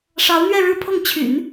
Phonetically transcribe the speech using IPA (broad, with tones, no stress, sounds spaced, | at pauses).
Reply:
ʂ ɑ˧˥ ʊ̯ n̪ ɥ ɛ˥˧ ɻ ɻ̩˥˧ pʰ ɤ˥˩ ŋ t͡ɕʰ y̰˨˩˦ n